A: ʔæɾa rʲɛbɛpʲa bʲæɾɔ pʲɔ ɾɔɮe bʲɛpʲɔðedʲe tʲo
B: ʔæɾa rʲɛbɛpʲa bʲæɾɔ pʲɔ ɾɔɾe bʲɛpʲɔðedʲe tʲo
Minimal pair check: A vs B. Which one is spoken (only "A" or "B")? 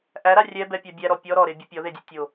B